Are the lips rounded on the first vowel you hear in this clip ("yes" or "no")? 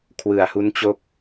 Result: no